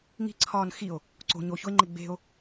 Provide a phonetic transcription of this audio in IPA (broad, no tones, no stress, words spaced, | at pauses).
ŋi̤ǀʰɒːn xio̯ | ǀo̤ ɲo çoe̯ŋ͡ǃe ɡ͡be̤o̯